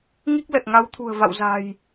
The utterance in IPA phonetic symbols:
ŋi˦˥k̚lə˨˩t̚ŋa˨˦wt̪ʰṳ˨˩ə̯ va̰˧˨wza̤˨˩j

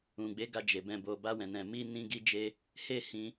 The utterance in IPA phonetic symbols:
ũ˨ɡ͡be˨˦ɡa˧ d͡ʒe˨bɛ̃˧bo˧ ba˧ wɛ̃˨nɛ̃˨ mi˧nĩ˧ ɡi˧d͡ʒe˧ | he˦hĩ˧

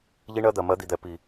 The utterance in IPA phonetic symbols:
ʎi˦ɳɜ˦d̪ɜ˨ mɜ˨˦d̪i˨d̪ɛ˨ pi˨

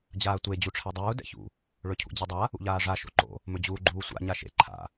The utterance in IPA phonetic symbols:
d͡ʑaːtʷe d͡ʑuʈ͡ʂʰɛdˤuː dɛ̰çṵ | ɭɵcʰṵd͡ʑɛdˤa | ṵʎaːʐa ʃo̰ǃo̰ | mɵd͡ʑuːɡ͡ǃuːsʷa̰ ɲaʃḛ ǃʰa̰

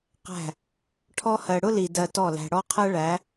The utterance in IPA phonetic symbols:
qæ̤˦˨ | ʈʰɔ˧hɜ˨ɽʊ˦li˨ dɜ˧tɔ˦˨læ̤˧ ɽɔ˦qʰɜ˦ ɭæ˨˦

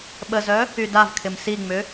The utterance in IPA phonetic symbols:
ɓəzœ | ydavkʰɪm siŋ͡mʏ

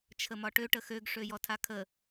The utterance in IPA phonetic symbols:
t͡ʃʰəmɒʈø ʈəxøɡ ʂøjɔtʰakʰə

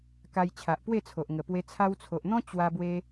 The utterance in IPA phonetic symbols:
ka˧jt͡ɕʰa˨ʔpwe˥˧t͡sʰo˨ʔ ŋə˨˩pwe˧ t͡sʰa˧wt͡sʰo˨ʔn̪ɔ̃˦ t͡ɕwa˧bwe˧

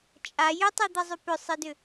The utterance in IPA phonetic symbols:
t͡ʃʼa jʏtˤed̪ɛzˤʏ pʏsˤɘdʏ

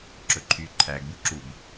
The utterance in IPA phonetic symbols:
ǁɵǃʰy ǃʰæɡ buǁub

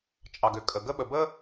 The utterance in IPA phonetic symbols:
t͡ʃʼɑ˨ɡʏ˨kʼə˨ ɡə˦ɓə˨ bə˦

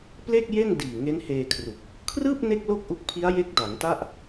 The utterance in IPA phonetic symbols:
ple˥˩k̚ je˥˩ndiː˨˩ ŋe˦˥nheː˧kʰru˨˩k̚ | kʰrɯː˥˩p̚ ne˥˩k̚lo˥˩k̚ʔu˦˥k̚pʰi˦˥a̯ je˦˥k̚da˩˦ŋta˥˩ʔ

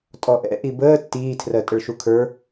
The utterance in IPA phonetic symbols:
tʼɔʔɛ̰ ʔibəː tːiːtʰrɜ tʼəɭʃukʰə˞

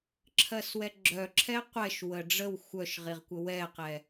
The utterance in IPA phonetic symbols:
ǁʰɜswɛɡ͡ǁœǁʰɛ qʷɛʃwə ɖ͡ʐəw xʷœʃʁiʁkʷə wɛqɛ

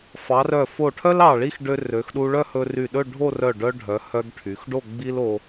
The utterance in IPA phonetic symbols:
fɑ˩˧rœ˧˩ fo˧˩ ʈʰœ˥l ɑ˧˩ɭi˥˧xɖø˧ rø˩˧xɗu˧ɭœ˥˧ hɵ˧ry˧˩ɗɵ˥˧ ɖʱo˥˧rœ˧˩ɖœ˧ɖʱœ˩˧ hœ˧ɡʈʰy˩˧xɖo˥˧ ɡ͡bi˥l o˧

